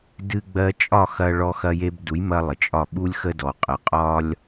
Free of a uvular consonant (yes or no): no